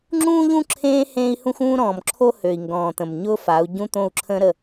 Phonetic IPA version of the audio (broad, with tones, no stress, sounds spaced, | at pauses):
ŋ͡ǁ ũː˦ ʎ ũ˦ ǁʰ ẽː˦ h ẽː˦ i̯ h ũ˦ x ũː˦ ɾ ɔ̃ː˨ m ǁʰ o˦ h ø˨ i̯ ŋ ɡ ɔ̃ː˨ t̪ ə̃˨ m ɲ ʊː˦ f a˨˦ u̯ ɟ ũ˦ t̪ õ˦˨ u̯ ǁʰ ə̃ː˦ ɾ ə˦˨